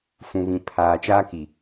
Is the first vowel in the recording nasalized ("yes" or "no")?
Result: yes